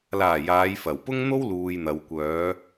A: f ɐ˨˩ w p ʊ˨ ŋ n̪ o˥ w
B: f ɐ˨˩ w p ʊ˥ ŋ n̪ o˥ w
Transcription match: B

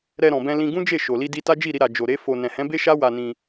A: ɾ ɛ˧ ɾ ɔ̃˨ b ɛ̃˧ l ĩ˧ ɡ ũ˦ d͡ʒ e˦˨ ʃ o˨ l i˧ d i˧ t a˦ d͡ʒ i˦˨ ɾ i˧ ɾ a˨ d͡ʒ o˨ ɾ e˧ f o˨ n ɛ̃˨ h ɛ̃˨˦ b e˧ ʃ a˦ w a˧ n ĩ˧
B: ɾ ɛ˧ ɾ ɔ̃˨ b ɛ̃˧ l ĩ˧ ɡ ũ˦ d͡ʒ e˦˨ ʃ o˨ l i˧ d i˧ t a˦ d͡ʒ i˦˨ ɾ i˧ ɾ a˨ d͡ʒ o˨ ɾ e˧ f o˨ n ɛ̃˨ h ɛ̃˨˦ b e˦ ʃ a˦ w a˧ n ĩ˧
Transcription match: B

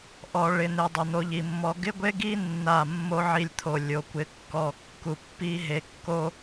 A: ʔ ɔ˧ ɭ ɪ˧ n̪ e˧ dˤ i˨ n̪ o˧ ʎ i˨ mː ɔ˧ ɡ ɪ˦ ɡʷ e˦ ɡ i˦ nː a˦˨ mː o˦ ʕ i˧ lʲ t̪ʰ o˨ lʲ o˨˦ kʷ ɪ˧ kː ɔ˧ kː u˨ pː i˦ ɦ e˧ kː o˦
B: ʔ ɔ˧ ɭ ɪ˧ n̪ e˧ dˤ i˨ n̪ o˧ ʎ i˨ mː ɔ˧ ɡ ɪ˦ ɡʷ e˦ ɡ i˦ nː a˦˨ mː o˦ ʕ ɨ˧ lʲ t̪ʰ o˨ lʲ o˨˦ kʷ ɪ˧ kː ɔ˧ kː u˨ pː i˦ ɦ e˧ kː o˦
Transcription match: A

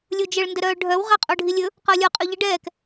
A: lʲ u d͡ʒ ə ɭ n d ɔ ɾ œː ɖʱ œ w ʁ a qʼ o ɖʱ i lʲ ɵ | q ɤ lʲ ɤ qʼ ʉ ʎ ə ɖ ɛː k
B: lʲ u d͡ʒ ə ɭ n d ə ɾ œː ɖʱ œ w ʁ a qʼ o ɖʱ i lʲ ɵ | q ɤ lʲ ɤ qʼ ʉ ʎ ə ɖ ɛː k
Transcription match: B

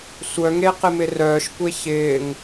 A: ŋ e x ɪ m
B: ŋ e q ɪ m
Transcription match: B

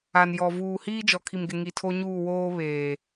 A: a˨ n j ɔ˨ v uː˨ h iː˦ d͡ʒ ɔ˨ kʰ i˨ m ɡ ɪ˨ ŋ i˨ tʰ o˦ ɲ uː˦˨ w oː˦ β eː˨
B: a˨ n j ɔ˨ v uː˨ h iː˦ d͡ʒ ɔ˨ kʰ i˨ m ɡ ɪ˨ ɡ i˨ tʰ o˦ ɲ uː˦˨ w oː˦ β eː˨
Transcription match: A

